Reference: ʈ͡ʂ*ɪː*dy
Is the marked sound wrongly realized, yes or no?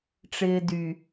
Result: no